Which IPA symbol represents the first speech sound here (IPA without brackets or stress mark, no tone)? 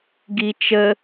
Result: ɡ